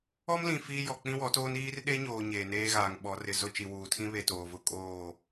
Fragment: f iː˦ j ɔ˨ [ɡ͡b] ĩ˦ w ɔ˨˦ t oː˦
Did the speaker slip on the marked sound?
yes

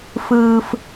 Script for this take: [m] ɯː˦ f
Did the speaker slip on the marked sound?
yes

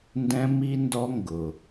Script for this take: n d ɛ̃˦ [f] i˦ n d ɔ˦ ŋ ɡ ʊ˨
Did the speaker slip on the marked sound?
yes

